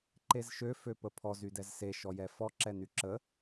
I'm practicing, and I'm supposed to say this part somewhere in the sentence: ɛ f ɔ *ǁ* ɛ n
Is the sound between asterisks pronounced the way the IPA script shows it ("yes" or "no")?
yes